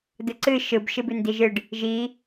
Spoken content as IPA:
d ɯ ǀ ɨ ʃ ɯ b ʃ ɨ b ʉ n d i ʒ ɨ ɖ | ʒ i

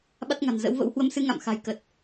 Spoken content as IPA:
ɓ a˦˥ t̚ ŋ a̤˨˩ n z ə̰˧˥ w v ə̰˧˥ w h w ə˧ m s ɨ˧ ŋ a̰˧˨ m x a̤˨˩ j k ə˨˩ t̚

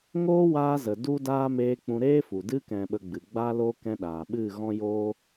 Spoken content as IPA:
ŋ oː˦ w aː˧ z ə˨ d u˦ d aː˦ m eː˧ k͡p ũ˧ ɾ eː˦ f u˨ d ɨ˧ k ɛ̃˨ ɓ ə˨ ɡ͡b ɨ˨ ɡ͡b aː˦ l oː˦ k ɛ̃˧ ɗ aː˨ ɓ ɨ˦˨ ɣ ɔ̃˦ j oː˦

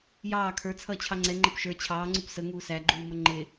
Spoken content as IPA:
j ɑː kʰ ə˞ t͡sʰ ʌː t͡ɕʰ ɑ ŋ͡ǀ ɛ ŋ͡ǃ ʌ p ʃ ə˞ t͡ɕʰ ɑː ŋ͡ǀ u p s ə ŋ uː s æ ɡ͡ǃ uː m ʌ ŋ͡ǃ ɪ

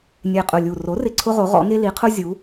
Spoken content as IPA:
nʲ e˨˩ qʼ ʊ˨˩ lʲ u˨˩ r o˩˥ r ɪ˨˩ ǀʰ ʊ˧ ʁ o˩˧ ʁ ɔ̰˩˧ ŋ e˧ l i˩˧ qʰ ʊ˧ zʲ u˩˧

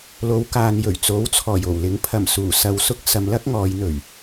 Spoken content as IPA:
l o˨˧ w k aː˨ n j ɵ˨˩ ɥ t͡s o˨˥ w t͡sʰ ɔː˨˩ j o˨˩ w l ɪ˨˥ ŋ pʰ ɐ˨˩ m s uː˨˩ s ɐ˨ w s ʊ˥ k̚ s ɐ˨˧ m l ɐ˥ k̚ ŋ ɔː˨˧ j n̪ ɵ˨˩ ɥ

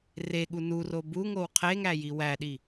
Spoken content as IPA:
r e ɠ u n u r o b u ŋ o w qʰ e ŋ æ j i w æ ɗ i

